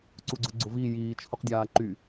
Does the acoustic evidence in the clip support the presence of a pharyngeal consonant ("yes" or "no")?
no